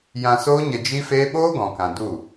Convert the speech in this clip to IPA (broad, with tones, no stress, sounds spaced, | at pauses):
j ã˧ s oː˦ ɲ ə˧ d͡ʒ i˦ f eː˦ ɓ oː˦ ɡ ɔ̃˨ k ã˨ d u˦˨